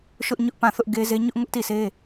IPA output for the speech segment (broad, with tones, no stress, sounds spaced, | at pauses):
ʃ ʊ˦ ʔ ɲ ʊ˦ ʔ p ã˦˨ θ ʊ˦ ʔ ɡ e˦ z e˦ ɲ ʊ˦ ʔ ŋ ʊ˦ ʔ t i˦˨ s e˦